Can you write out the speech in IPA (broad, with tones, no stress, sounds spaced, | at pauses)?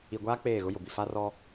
i˨ ɡʷ aː˦ k͡p eː˦˨ ɣ ʊ˦ j ʊ˨ b i˨ f a˦ r ɔ˦